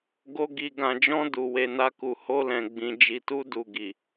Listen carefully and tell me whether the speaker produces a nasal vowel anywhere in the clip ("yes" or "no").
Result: yes